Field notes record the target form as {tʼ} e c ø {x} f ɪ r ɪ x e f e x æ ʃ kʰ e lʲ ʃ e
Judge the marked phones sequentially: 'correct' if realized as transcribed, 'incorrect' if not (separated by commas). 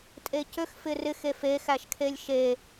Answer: correct, correct